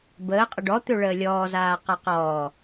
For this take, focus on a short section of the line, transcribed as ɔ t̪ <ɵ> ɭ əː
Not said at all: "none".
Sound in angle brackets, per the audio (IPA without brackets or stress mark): ɵ